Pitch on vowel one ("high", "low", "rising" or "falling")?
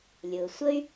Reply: low